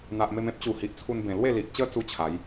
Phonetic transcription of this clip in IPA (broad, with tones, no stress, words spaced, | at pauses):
n̪a˨ʔme˧m ẽ˦p̚t͡ɕu˨˩ hi˨ʔt͡sʰu˧nbẽ˨˩ lwe˥˧li˨ʔt͡ɕə˦t͡su˧ t͡ɕʰa˨˦j